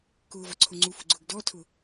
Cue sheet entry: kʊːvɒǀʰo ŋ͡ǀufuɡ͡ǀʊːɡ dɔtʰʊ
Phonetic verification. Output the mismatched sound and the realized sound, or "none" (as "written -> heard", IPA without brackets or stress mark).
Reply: none